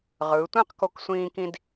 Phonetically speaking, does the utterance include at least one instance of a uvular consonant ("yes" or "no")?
yes